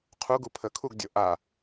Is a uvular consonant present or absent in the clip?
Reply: present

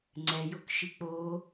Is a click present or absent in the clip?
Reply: present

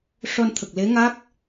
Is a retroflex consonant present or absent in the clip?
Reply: present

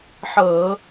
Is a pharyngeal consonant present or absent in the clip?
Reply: present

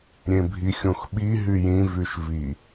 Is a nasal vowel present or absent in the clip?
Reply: present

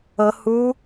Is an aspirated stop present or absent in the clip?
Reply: absent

